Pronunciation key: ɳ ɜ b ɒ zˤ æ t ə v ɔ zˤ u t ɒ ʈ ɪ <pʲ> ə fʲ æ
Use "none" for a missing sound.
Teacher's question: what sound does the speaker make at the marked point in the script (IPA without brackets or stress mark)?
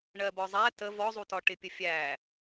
pʲ